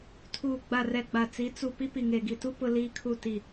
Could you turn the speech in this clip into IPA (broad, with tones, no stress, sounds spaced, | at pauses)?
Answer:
tʰ uː˨ ɡ͡b a˨ r ɛ˨ ɡ͡b a˨ t͡s i˨˦ t͡s u˨ p i˦ p i˨ ŋ e˨ ɡ i˨ t u˦ p ʊ˦ l iː˦ kʰ u˦˨ t i˨